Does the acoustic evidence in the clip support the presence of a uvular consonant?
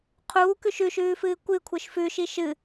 yes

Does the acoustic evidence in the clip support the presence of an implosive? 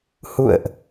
no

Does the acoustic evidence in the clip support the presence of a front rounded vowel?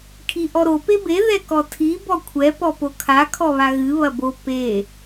no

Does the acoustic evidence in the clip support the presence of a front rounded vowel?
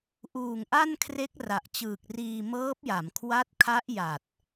no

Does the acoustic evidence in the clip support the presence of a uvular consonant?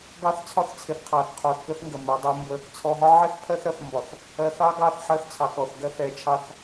yes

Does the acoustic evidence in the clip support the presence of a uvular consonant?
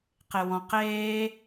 yes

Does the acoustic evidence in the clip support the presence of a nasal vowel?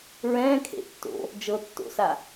yes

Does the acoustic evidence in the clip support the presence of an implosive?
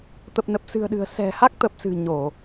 yes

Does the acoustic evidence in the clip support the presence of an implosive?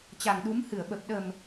yes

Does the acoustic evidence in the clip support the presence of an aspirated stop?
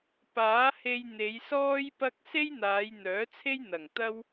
yes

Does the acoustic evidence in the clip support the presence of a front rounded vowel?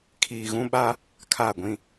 no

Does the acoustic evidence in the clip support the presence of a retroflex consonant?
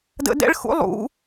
yes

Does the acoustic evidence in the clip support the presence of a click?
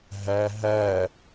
no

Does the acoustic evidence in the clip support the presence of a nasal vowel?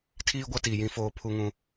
yes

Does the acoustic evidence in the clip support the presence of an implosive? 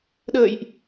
yes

